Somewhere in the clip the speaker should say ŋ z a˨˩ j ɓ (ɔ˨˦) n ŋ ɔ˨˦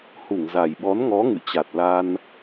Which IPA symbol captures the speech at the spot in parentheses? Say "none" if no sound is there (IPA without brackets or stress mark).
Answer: ɔ˨˦